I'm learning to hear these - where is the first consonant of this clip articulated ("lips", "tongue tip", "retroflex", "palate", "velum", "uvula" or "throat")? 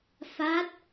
lips